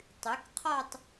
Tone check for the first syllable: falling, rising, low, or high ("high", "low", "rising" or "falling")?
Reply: rising